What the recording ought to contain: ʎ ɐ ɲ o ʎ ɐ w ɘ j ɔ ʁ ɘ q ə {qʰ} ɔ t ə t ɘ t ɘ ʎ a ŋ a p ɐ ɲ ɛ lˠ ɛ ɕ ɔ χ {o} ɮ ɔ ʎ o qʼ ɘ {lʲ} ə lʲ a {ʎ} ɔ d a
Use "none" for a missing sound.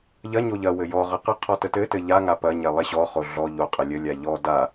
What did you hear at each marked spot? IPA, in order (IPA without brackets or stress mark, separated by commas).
qʰ, o, lʲ, ʎ